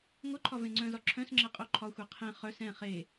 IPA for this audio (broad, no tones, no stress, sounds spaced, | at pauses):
ŋʷ œ ǃʰ ɒ v ẽ ŋ͡ǀ œ̃ z ɒ ǁʰ œ̃ s ŋ͡ǁ ɛ qʼ o ǃʰ ɒ xʷ e qʰ ẽ χ œ s ɛ̃ χ e